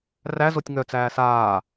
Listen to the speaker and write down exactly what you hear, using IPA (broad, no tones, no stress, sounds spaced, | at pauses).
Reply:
r æ z o tʲ ŋ œ t͡s æː s aː